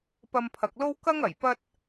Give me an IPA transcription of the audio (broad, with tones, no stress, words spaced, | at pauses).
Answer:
pɐ˧mpʰɐ˨k̚lo˥w kɐ˥ŋɐ˨˩j pɐ˥t̚